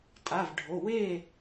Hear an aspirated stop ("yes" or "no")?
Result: no